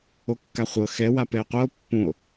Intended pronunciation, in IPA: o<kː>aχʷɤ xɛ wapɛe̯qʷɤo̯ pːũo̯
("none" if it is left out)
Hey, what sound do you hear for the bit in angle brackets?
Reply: kː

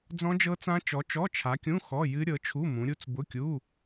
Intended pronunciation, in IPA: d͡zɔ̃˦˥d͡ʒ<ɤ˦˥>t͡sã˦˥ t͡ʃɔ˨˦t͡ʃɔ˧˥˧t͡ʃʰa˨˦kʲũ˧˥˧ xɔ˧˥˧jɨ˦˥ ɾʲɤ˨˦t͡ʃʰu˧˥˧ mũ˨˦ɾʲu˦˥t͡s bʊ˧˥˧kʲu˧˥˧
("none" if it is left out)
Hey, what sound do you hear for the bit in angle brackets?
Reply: ɤ˦˥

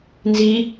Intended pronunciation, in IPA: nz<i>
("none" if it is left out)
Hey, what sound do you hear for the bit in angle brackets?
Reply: i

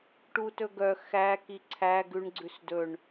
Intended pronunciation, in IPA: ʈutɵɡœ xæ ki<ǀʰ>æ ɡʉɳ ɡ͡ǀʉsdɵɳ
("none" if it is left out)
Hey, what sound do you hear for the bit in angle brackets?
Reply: ǀʰ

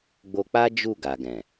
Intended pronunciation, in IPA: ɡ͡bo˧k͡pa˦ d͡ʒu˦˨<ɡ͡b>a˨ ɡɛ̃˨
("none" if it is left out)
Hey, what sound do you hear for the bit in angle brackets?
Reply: ɡ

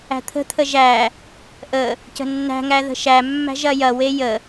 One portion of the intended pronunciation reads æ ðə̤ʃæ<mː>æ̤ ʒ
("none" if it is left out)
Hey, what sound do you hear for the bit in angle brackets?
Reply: mː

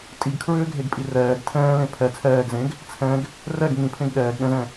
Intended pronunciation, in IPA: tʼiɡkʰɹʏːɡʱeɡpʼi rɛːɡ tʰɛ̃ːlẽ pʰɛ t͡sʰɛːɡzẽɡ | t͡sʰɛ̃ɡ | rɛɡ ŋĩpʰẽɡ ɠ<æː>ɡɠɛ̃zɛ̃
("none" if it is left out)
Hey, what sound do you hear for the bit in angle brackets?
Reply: ɛː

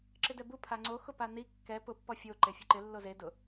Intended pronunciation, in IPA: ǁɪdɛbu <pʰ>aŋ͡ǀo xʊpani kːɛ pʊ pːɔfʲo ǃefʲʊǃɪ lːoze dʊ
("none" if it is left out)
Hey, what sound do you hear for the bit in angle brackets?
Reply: pʰ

